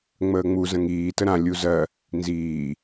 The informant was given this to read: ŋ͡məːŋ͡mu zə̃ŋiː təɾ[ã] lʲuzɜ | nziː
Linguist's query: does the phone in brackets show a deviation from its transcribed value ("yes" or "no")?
no